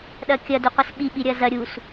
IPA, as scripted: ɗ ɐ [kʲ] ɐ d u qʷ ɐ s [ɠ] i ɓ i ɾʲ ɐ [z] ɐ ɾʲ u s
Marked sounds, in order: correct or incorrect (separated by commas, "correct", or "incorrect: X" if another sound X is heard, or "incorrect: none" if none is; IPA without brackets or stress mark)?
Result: correct, incorrect: ɓ, correct